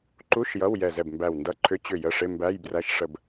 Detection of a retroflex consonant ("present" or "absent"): present